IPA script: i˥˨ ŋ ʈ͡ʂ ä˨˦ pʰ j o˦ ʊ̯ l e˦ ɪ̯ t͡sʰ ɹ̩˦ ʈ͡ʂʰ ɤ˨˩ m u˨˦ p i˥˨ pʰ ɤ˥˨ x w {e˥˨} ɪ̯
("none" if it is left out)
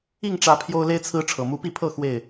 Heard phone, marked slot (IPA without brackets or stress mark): e˥˨